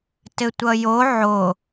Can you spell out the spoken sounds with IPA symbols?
t ɘ tʷ ʌ j o ʕ o

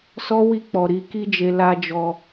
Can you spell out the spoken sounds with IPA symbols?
s ɔ˦ w i˦˨ k͡p ɔ˨ ɾ i˧ k i˦ d͡ʒ e˧ l a˦ d͡ʒ ɔ˧

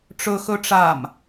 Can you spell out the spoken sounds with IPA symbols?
ʈ͡ʂ ɵ x ɵ ʈ͡ʂ a m

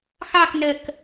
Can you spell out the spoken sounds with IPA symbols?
x ɑ k n ɜ k

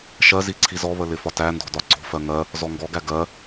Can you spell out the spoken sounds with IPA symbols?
ʃ ɜ z i ǀʰ i z ɔ β ə l ɪ f ɒ t æ n d ɔ̤ d ɒ ǀ ɔ̤ f ɜ ŋ ɜ | z ɔ ŋ ɡ ɔ ɡ æ ɡ ɜ

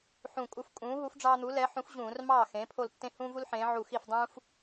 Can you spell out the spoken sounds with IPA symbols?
ħ ũ˧˩ kʼ u˦ f kʼ ũː˨˥ ɦ u˨˥ f ɖ͡ʐ ɑː˦ n̪ u˨˥ l ɛ˨˥ ħ ũ˨˥ f ʑ ũː˧˩˧ r m ɑː˥˩ x ẽ˩˧ pʰ o˧˩ l tː ẽ˦ h ũː˦ v u˦ l ħ ẽː˩˧ ʕ u˧˩ x i˥˩ f dˤ ũː˦ f

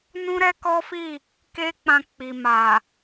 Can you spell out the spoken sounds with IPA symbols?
n ũ˦ ɾ ɛ˦ k ɔ˦ f i˦˨ | k e˦ k͡p ã˧ k͡p i˨ m a˨

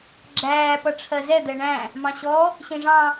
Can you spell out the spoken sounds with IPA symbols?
ɡ͡ǁ æː p ʌ ʈ͡ʂʰ ɜ z ɛ d̪ ɛ ɳ æ̃ | m ɑ̃ ɕ ɔ | ɕ ĩ ʐ ɑ̃

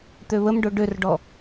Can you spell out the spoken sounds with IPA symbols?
t̪ ø β ə m ɖ o ɖ ø r ɖ ɔ

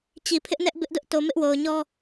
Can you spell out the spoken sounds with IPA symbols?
t͡ɕ i˨ pʰ ɪ˦ ʔ n ɛ˦ ʔ b ɪ˦ ʔ d ʊ˦ ʔ t o˨ m ɪ˦ ʔ w o˨ ʊ̯ ɲ ɔ˦

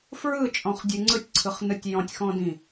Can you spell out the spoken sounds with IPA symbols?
f ɹ ɯ t͡ʃʼ ɔ̃ χ dʲ ɯ ŋ͡ǀ ɯ tʲ ǀʰ ɯ χ n ɯ tʲ j ɔ̃ tʲ x ɔ̃ d ĩ

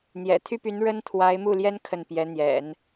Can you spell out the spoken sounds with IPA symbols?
n̪ j ɛ̰˨˩ t̪ʰ y˥ p y˧˥ n ɻ ə˥ n t̪ʰ w a˧˥ ɪ̯ m u˥˩ l j ɛ˥ n kʰ ə˥˩ n p j ɛ˧˥ n̪ j ɛ̰˨˩˦ n

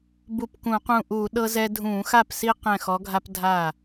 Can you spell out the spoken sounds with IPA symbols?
b u˧˩ p k ũ˧˩˧ q ũ˧˩ ʔ uː˧˩˧ ɗ ɤ˦ z ɛ˦ dʱ ũː˧˩˧ x a˥˩ p s i˦ q ɛ̃˧˩ x ɔ˨˦ ɡʱ a˦ p dʱ a˥˩

